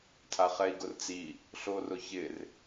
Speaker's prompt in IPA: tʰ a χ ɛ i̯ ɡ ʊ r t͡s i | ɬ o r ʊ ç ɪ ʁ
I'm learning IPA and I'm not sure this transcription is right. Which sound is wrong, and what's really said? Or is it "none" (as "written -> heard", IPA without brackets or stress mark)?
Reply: ʁ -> r